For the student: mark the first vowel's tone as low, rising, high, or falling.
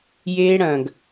high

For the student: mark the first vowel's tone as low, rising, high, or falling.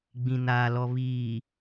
low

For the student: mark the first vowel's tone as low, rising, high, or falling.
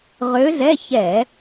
rising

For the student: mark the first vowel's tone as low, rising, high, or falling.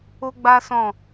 high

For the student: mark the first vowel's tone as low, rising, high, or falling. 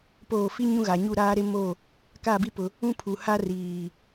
falling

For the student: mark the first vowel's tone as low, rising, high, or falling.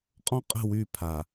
high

